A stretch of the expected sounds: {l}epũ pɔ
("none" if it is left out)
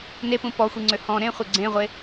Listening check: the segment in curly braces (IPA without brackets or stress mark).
n